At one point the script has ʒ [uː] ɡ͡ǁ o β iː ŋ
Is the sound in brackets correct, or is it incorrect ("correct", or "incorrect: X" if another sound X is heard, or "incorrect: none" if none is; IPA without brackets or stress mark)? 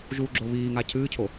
correct